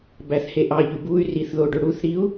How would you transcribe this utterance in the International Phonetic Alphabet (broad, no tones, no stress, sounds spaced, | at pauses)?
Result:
b æ θ h e ʔ ɑ ʎ y b u y̯ r i θ ð o ɖ ø ɽ u θ ɾ i u̯